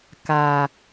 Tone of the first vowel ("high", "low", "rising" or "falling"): low